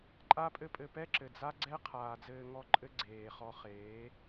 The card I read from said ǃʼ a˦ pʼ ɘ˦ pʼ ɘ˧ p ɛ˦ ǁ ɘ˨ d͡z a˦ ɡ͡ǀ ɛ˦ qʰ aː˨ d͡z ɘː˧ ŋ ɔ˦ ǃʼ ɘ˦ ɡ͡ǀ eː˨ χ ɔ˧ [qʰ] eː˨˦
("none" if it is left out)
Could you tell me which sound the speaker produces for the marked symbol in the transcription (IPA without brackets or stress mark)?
χ